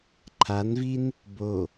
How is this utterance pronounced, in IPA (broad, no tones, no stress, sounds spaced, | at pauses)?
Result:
ǃʰ a n v i n | b o